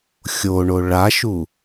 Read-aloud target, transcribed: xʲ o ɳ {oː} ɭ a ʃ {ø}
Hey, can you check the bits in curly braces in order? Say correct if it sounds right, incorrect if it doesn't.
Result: incorrect: o, incorrect: u

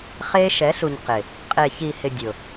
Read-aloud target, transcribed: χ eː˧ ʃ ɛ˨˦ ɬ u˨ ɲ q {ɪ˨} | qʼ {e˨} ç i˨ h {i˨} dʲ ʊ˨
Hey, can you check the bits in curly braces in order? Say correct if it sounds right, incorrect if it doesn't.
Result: correct, correct, incorrect: ɪ˨

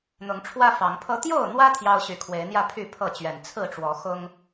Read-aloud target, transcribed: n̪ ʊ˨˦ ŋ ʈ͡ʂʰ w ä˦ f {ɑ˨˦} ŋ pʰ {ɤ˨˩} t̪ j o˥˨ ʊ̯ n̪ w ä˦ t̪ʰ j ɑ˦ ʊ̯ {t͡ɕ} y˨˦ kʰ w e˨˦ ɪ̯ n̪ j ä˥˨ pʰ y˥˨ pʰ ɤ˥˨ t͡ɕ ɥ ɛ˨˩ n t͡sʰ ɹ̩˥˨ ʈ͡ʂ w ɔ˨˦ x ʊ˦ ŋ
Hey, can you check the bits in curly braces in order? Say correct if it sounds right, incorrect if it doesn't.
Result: correct, incorrect: ɤ˦, incorrect: ɕ

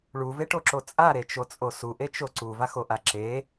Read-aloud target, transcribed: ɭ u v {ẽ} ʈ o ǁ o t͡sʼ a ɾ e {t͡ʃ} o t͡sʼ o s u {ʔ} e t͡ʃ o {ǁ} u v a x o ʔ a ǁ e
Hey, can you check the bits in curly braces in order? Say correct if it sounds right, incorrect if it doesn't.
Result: incorrect: e, correct, correct, incorrect: ǀ

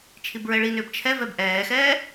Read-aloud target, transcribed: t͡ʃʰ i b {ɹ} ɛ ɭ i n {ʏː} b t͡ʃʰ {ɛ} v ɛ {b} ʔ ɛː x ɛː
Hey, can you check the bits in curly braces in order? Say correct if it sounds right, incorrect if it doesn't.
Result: correct, correct, correct, correct

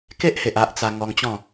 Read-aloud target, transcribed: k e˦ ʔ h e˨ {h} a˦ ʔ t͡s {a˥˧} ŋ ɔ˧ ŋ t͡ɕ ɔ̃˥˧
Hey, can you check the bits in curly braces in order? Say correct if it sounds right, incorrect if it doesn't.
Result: incorrect: ʔ, incorrect: a˧

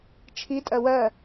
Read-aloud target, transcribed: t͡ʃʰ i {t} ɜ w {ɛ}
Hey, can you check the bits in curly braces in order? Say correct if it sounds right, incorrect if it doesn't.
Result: incorrect: tʼ, incorrect: ɜ

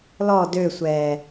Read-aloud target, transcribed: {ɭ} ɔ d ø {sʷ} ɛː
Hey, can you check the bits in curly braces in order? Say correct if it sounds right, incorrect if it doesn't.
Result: incorrect: l, correct

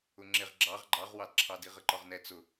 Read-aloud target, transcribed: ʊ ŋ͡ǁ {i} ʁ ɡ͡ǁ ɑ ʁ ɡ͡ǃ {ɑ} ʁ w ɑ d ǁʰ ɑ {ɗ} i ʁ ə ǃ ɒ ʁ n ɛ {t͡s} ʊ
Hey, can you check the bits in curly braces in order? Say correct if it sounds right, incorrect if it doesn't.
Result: incorrect: ɪ, correct, incorrect: d, correct

